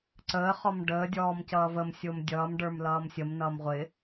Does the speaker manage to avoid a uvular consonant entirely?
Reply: no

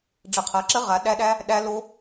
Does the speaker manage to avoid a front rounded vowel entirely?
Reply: yes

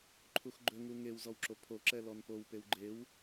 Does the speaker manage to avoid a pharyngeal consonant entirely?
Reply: yes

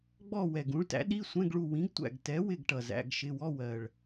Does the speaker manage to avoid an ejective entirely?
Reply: yes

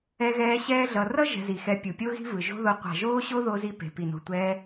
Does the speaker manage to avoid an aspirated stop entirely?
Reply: yes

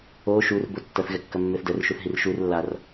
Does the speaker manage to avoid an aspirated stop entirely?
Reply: yes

